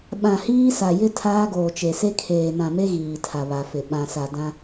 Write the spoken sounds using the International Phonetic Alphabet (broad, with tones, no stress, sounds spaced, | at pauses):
ɓ ã˨ h iː˦ s a˨ j ɪ˦ tʰ aː˦ ɡ oː˨ t͡ʃ e˨ s e˦ kʰ eː˨ n ã˨ m e˦ ɣ iː˨ tʰ a˨ β a˨ f ɪ˨ ɓ ã˨ s a˨ d ã˦